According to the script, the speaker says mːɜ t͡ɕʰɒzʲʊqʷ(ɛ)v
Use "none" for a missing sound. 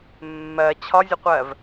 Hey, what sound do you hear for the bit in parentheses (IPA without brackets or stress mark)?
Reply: ɜ